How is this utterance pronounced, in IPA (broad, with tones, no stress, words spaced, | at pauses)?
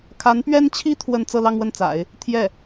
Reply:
kʰa˧˥npɥɛ˥nt͡ɕʰi˥ t̪ʰwə˥˧n t͡sɤ˥˧lɑ˥˧ŋwə˥˩nt͡sa̰˨˩˦ɪ̯ | t̪ʰjɛ˥˩